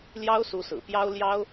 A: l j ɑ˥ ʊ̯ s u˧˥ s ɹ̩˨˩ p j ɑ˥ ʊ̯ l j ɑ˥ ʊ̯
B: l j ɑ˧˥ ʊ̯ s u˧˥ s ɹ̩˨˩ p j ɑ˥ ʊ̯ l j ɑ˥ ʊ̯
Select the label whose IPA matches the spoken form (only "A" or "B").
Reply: A